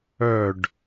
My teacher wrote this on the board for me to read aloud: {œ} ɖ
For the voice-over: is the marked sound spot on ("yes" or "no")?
yes